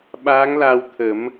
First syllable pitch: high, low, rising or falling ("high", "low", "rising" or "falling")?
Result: rising